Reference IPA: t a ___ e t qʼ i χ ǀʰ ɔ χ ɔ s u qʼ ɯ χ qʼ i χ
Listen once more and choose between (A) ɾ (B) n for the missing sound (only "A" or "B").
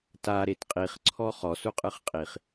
A